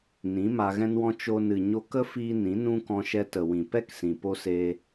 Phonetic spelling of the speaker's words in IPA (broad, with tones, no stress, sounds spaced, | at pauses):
n ĩ˨˦ m a˧ ɣ ɛ̃˦ n w ɔ̃˦ t͡ʃ o˧ n ɨ˨ ɲ o˧ k ə˦ f iː˧ n ĩ˨˦ n ũ˦ k ɔ̃˧ ʃ ɛ˧ t ə˨ w ĩ˨ p ɛ˦ k s ĩ˨ p o˦ s eː˧